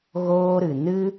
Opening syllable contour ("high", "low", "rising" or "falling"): high